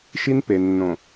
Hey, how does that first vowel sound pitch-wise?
high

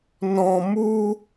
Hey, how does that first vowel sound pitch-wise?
low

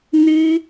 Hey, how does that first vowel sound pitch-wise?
high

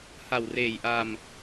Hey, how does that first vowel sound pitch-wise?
low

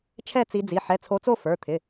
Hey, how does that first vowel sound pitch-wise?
falling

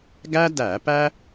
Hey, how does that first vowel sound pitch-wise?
high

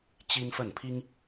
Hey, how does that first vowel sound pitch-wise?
high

